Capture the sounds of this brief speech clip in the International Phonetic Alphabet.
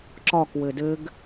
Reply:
ǁ ɒ k w ɘ d ɘ ɡ

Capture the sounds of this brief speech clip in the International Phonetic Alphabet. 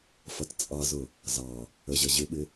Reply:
f ʌ t t͡sʼ ɑ z ʊ | z ɑ | ə ʑ ʌ ʑ ɪ ɓ ɪ

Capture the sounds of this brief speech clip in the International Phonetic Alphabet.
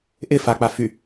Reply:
ʔ ɪ f a k͡p a f y

